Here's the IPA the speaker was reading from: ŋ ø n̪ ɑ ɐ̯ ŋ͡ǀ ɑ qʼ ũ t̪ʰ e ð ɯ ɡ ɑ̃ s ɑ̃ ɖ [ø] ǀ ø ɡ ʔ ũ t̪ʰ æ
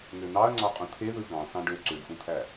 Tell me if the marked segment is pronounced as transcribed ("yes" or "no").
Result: yes